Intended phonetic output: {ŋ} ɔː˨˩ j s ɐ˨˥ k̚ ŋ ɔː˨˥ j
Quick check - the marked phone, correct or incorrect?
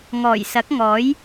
correct